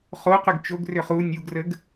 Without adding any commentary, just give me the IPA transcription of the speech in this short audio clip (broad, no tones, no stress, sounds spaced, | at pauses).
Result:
χ o q ʏ ɡ t͡ʃ o ɡ r ʏ χ u nʲ u ɡ r ə ɡ